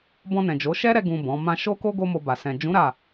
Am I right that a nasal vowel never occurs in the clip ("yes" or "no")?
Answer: no